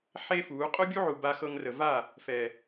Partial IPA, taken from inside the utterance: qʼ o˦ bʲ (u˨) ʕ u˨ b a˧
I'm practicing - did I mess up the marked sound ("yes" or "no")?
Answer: yes